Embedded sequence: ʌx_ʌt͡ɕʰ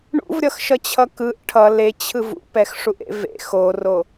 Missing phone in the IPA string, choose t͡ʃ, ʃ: ʃ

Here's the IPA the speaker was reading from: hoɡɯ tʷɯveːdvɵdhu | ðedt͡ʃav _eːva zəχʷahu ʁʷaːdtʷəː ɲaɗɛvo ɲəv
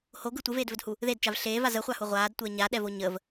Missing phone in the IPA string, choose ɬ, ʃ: ɬ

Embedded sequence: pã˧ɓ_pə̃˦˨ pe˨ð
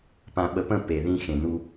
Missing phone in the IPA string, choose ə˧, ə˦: ə˧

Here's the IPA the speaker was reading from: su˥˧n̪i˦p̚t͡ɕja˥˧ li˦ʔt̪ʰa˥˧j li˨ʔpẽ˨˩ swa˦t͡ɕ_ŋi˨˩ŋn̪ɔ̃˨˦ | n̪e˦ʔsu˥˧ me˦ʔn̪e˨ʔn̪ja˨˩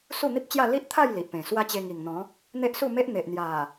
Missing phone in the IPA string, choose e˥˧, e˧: e˧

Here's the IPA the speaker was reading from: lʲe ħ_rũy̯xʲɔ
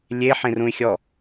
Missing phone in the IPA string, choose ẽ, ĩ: ẽ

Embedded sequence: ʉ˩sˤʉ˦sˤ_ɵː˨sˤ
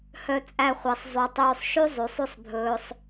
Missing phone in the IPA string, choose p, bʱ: bʱ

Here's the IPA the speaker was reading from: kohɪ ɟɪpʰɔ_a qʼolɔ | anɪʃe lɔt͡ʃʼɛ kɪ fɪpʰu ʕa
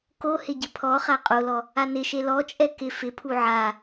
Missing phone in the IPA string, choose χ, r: χ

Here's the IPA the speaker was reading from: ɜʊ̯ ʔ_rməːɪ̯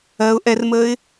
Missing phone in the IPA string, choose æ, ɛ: ɛ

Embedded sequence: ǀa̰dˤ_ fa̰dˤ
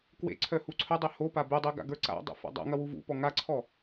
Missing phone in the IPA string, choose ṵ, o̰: ṵ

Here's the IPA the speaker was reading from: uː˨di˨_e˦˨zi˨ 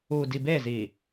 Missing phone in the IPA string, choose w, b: b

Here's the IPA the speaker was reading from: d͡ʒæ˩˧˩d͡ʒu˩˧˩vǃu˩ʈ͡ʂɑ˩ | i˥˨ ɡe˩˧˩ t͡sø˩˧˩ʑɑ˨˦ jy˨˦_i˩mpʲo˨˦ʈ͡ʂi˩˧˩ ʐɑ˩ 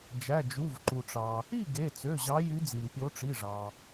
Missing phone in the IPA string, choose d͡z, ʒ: d͡z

